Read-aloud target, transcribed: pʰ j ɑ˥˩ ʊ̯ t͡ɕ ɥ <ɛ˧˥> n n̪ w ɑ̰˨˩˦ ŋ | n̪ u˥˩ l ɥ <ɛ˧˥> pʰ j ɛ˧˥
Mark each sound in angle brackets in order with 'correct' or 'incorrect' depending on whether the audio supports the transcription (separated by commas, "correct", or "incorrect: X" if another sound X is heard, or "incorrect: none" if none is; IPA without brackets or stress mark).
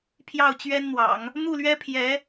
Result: incorrect: ɛ˥, incorrect: ɛ˥